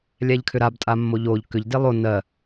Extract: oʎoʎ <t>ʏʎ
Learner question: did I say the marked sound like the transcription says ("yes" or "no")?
no